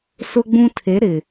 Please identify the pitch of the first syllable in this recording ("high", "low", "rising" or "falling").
high